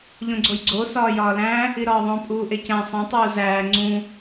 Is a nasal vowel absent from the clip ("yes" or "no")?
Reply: no